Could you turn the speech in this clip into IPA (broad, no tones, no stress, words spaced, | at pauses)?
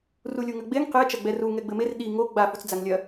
rulʲuŋɐɡ͡beŋ qe t͡ʃɐɡ͡bɛru ŋɛɡ͡bɘmer ɗi ŋo ɡ͡ba fut͡sd͡zaŋlʲɐ